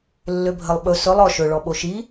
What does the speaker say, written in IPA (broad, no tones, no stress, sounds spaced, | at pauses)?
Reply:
lː ø bʱ ə lˠ ɓ ɵ s ɵ lˠ ɔ ʃ ɵ ɭ ɔ ɓ o ʃ i